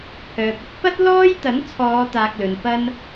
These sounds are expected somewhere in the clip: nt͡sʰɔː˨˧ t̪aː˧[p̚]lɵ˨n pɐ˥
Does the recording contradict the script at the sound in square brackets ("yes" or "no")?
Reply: yes